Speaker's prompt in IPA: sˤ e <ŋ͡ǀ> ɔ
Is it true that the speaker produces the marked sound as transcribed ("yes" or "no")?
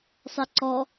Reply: no